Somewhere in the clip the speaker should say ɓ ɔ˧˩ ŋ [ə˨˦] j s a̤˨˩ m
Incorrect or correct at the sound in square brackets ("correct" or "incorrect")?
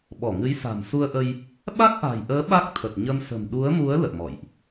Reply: incorrect